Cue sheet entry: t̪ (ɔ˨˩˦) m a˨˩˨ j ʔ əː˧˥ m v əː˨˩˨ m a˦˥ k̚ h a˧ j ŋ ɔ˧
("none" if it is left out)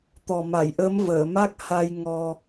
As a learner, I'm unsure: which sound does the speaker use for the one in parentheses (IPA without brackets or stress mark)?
ɔ˨˩